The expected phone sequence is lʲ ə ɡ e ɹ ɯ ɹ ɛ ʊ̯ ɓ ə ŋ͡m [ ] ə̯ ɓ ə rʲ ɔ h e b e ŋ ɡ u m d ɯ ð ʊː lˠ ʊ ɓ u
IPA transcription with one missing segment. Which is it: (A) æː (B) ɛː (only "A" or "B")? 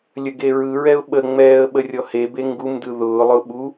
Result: B